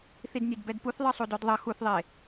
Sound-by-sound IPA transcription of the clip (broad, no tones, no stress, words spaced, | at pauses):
θidnʲedbɛdpuθ ðˤɯsˤudodðˤʌ xuθðˤe